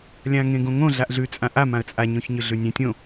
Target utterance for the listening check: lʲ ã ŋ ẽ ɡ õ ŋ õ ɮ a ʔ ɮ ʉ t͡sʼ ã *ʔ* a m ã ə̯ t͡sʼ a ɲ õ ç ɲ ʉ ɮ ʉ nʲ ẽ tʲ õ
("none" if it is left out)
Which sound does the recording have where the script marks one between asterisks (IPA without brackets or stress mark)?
ʔ